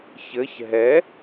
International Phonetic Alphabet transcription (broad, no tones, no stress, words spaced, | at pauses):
çɘç ɦɛ